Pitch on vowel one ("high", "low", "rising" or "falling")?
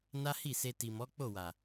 high